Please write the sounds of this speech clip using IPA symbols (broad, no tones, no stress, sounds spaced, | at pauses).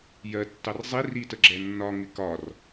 j ɜ tː ɑ r zˤ i r i t ə ɡ͡ǁ ɛ nː ɒ ŋ ɪ k ɒ r